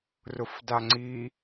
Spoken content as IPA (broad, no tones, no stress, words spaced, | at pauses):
rʊfdaŋ͡ǀi